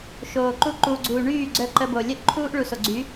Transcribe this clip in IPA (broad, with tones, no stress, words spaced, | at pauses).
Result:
ʃoː˨ǃu˦ ǃuː˨ɡ͡ǀuː˨ ɳyː˦˨ ɡ͡ǀœ˦ǃə˦bo˨ lʲœ˦ʔǃʰuː˦ʔɭu˨ so˨ɡ͡ǀy˨˦